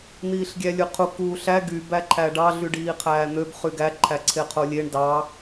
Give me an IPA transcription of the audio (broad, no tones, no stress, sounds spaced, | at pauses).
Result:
n̪ iː ɬ ɡʲ æ lʲ ɯ qʰ u k uː ɬ æ ɡ y b æ ǃʰ æ ɖ ɑ ɮ y ɖ iː qʰ æː n̪ ø b χ y ɡ æ ǃʰ æ ǀʰ e qʰ o lʲ e ɳ d ɑ